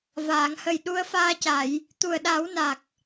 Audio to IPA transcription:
v aː˨˩˨ ŋ h ə˨˩ j ɗ u˧ ə̯ f aː˧ c a˨˩˨ j | t̪ u˨˩ ə̯ ɗ a˨˩˦ w n a˨˩ k̚

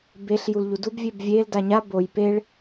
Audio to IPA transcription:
b e ɬ j u l ʎ u d u b vʲ e b vʲ e l d a ɲ a b o j p e ɭ

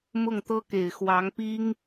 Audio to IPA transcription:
m ʊ˥˩ ŋ t̪ ɤ˥ k e˨˩ ɪ̯ x w ɑ˧˥ ŋ p i˥ ŋ

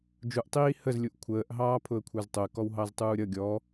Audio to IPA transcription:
d͡ʒ u ʔ tˤ iː h ə z lʲ u ʔ kʷʰ əː ʔ ɦ ɑː pʰ ʊ ə̯ kʷʰ ə˞ z tˤ ʊ ə̯ k ɔ w ɦ ɑ z tˤ uː ɾʲ ʌ ɡʲ ɔ

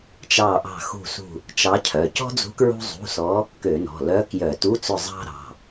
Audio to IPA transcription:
t͡ʃ ɑ˦˨ ʔ ɑ̤˦˨ x ṳ˦˨ s ṳ˦˨ | t͡ʃ ɑ˧˥ cʰ œ˩˧˩ c ɔ̤˥ d͡z ṳ˧˥ k ɹ ṳ˥ zˤ ṳ˧˥˧ s ɔ˧˥ | k ø˧˩˧ n ɔ̤˩˧˩ l œ˧˥ k j œ˧˩˧ t u˧˥˧ t͡s ɵ˦˨ zˤ ɑ̤˥ ɾ ɑ̤˩˧˩

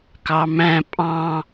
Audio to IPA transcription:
k ɑ m æ̃ pʼ ɑ̃

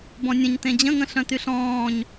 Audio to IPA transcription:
b ɔ̃ nʲ ə̃ ɲ t ẽ d͡ʑ ə̃ ŋ ə̃ ɬ œ̃ t y ɬ ɔ̃ː ɲ

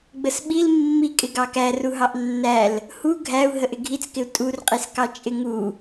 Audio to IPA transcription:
ɡ͡b ə s ɓ i l mː i kʼ ɪ ɡ ɑ k æ r u ɦ ɑ ʔ nː æ l | h u ɡʱ æ u̯ ɦ ə ʔ ɪ ɡʱ i t͡s k ɪ u̯ tʼ u r qʼ i s k ɑ t͡ʃʼ ɪ ŋ u

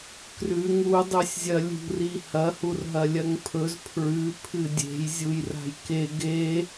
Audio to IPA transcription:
k r ʉ ŋ u dˤ ʉ sʲ zʲ ɐ lʲ ṳ r i h ɐ h u r ɦ ɐ lʲ ɐ ŋ pʰ ɵ z pʰ ɹ ʉ pʰ ɨ dʲ e̤ j zʲ u j r a̤ j k e ɡ e

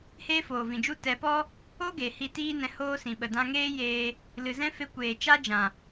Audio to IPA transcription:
h eː˦ f oː˨ v ĩ˨ d͡ʒ u˦ t ɛ˨˦ p ɔ˦ | o˦ ɡ e˨ h i˧ t iː˦ n ɛ̃˧ h oː˦ s ĩ˨ ɓ ə˨ d ã˧ ŋ eː˦ j eː˧ | l ɨ˨ z ɛ̃˦ f e˧ kʷ eː˨ t͡ʃ a˦ d͡ʒ ã˨

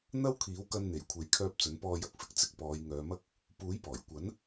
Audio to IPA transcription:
n̪ ɐ˥ w kʰ iː˨˥ w k ɐ˧ n n̪ e˨˩ j kʷʰ e˨˥ j kʰ œː˧ p̚ t͡s ɵ˨˥ n p ɔː˧ j ɐ˧ k̚ f ɪ˧ k̚ t͡s ɪ˧ k̚ p ɔː˨˧ j ŋ œː˨˧ m ɐ˥ k̚ | p uː˨˥ j p ɔː˨˩ j kʷ ɐ˨˥ n

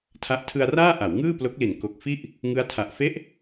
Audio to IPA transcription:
tʰ a˦˥ ʔ tʰ ɯ˧ a̯ r aː˥˩ ʔ a˩˦ w ŋ ɯː˥˩ p l o˦˥ k̚ l i˨˩ n k o˨˩ k̚ f i˥˩ ʔ | ŋ ɯ˦˥ a̯ tʰ a˨˩ ʔ f e˦˥ ʔ

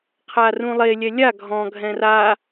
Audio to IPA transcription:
qʰ a r ũ lˠ e lʲ ɛ lʲ a ɡʱ ɔ̃ ɡʱ ɛ̃ r a

